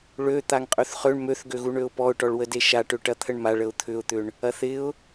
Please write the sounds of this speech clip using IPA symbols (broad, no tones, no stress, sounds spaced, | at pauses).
ɭ ø t̪ a ŋ qʼ ø θ χ ø ɳ m ø θ ɡ ø ɣ u ɳ ø ʊ̯ p ɔ ʊ̯ ʈ ɔ ɭ w ə d e ʃ a ʈ ø ʈ ɐ t̪ʰ ə ɳ m a ɭ ə ʊ̯ t̪ʰ ʏ ʊ̯ t̪ ʏ ɳ | ɐ θ ɪ ʊ̯